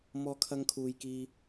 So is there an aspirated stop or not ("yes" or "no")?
yes